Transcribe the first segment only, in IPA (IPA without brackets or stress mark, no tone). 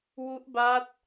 w